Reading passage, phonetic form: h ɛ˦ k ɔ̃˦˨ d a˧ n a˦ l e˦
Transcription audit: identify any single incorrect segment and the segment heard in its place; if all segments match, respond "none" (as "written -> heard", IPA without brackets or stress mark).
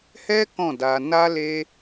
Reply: none